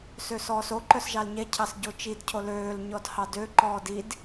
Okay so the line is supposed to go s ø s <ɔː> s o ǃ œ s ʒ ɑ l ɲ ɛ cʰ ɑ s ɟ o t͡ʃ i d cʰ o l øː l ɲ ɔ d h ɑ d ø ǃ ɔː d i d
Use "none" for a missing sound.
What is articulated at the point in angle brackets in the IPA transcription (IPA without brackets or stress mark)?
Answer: ɔː